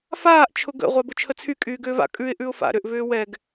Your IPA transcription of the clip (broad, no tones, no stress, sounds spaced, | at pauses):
f aː ʔ t͡ʃʰ ʊ ɡ ə̰ ʁʷ a b ʊ t͡ʃʰ ə t͡sʰ y kʼ yː ɡ ʏː v a̰ kʼ ʉ ɪ̯ ʔ ʉ ʊ̯ f a̰ ɾ ʏ ʔ v ʏː w ɛ ɡ